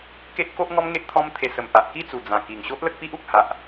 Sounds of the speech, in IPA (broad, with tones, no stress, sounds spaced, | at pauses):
k e˦ ʔ k o˦ ʔ ŋ ɔ˦ m ŋ e˦ ʔ t̪ʰ ɔ̃˦ m t̪ʰ e˧ s ə˨˩ m p a˨ ʔ k i˥˧ t͡s u˨˩ d͡z ã˨˩ k i˨˩ ŋ ɕ o˦ ʔ l ə˦ k̚ p i˦ ʔ u˨ k̚ h a˨ ʔ